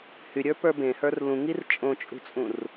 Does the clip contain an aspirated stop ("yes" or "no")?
no